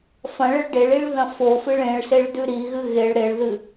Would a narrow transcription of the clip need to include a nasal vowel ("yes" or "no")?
yes